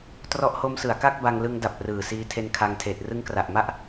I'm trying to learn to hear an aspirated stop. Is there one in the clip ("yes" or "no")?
yes